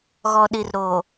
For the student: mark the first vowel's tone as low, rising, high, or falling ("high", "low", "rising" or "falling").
low